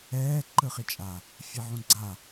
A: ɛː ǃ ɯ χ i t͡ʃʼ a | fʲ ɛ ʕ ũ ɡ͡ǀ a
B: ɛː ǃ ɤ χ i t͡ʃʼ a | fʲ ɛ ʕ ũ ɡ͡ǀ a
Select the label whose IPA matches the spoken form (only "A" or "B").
A